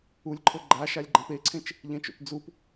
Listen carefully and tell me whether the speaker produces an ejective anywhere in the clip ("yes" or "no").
no